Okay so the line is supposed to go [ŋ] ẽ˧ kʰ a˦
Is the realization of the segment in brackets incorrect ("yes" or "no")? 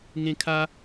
no